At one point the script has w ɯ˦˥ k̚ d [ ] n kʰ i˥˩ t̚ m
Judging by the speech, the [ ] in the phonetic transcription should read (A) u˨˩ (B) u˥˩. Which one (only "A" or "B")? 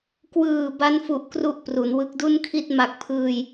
B